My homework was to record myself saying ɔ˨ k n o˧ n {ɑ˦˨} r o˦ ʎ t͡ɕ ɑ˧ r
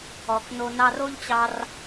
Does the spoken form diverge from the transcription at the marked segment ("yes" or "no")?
yes